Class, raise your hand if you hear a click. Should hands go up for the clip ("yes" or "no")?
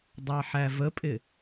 no